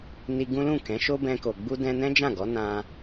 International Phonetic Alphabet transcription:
n i˧ ɡ ũ˦ l ũ˦˨ k ɛ̃˨˦ ʃ o˦ b ɛ̃˧ k o˨ ɡ͡b u˧ d ɛ̃˧ n ɛ̃˦ d͡ʒ ã˦˨ ɡ ɔ˨˦ n ã˧

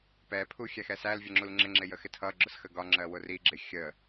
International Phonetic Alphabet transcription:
p ɛ pʰ u xʲ æ x ɛ s æ l vʲ ə ŋ͡ǁ u l ŋ͡ǁ ɪ ŋ͡ǁ ɪ j ə x ɪ tʰ ʌ ɡ͡ǁ ʊ s x ə ɡ ɒ ŋ͡ǁ ɜ w ʊ r i ɡ͡ǁ ɪ xʲ ə

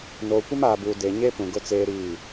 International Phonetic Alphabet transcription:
n oː˨ kʷ ɪ˦ m aː˨ b uː˨ d e˨ ɲ e˦ p ũ˨ ɡ ʊ˦ t͡s eː˦ ɾ iː˦˨

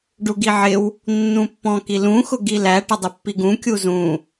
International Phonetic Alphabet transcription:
ɖ u ɡ i ʕ ɪ w | nː ũ pː ɔ̃ k i l ũ x ʊ ɡ i l æ ʈ ə dˤ ɪ pː i ɡ ũ kʲ u z ũ

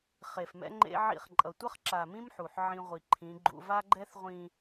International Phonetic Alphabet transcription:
χ e˨ f m ɛ̰˦ ŋ͡ǃ ḛ˦ ʕ ḭ˦˨ χ ǃʼ ʌ˨ tʷ ʌ˦ χ ǁ a˨ m ĩ˦ m ħ u˨ ħ ʕ ĩ˦ ʁʷ i˨ ǃʰ ĩ˨˦ ɡ͡ǃ ṵ˦ v a˦ ɡ͡ǃ ɛ˦ θ ʁʷ ĩ˨

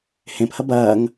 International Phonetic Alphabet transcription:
h ẽ p h ɐ b ɐː ŋ

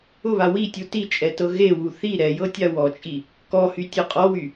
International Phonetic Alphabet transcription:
ʊ β a w i tʲ u t i t͡ʃʼ ɛ t ɤ ɣ e w u θ i ɾ ɛ j ɤ tʲ a w ɔ t͡ʃʼ i | k ɔ h y tʲ ɤ qʼ ɔ w y

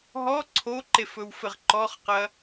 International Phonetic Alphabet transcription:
ɦ ɔ ǀʰ o ǃ e f ɵ w f ɘ ʁ ǃ ɔ χ q ɐ

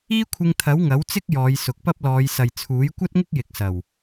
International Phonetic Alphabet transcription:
iː˥ kʷʰ ɪ˧ ŋ t̪ʰ ɐ˨˥ w ŋ ɐ˨˥ w t͡s ɪ˥ k̚ j ɔː˨˧ j s ʊ˨˥ k̚ p ɐ˥ p̚ l ɔː˨˧ j s ɐ˨ j t͡sʰ uː˨˥ j kʷ ɐ˥ t̚ ŋ ɪ˥ k̚ j ɪ˨ k̚ s ɐ˨˩ w

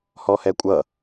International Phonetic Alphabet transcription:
h ɔ h ɛ kʷʼ ʌ

